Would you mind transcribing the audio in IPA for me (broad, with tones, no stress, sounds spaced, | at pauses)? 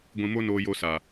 ɡʷ ĩ˧ m o˦ n oː˧ j o˧ s a˨